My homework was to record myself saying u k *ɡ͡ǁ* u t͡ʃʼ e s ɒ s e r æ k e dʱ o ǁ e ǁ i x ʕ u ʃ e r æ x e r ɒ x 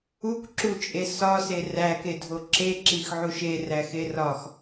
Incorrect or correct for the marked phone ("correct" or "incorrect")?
incorrect